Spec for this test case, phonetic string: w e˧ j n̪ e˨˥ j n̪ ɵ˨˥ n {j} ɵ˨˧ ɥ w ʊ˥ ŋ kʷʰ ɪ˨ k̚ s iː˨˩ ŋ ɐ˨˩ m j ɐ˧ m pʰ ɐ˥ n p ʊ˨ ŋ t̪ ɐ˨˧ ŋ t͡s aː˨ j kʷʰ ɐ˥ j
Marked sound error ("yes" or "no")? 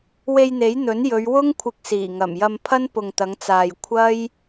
no